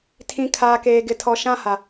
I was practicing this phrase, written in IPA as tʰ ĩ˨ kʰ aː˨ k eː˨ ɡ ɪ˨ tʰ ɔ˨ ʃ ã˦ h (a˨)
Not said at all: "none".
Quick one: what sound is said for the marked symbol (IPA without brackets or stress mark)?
a˨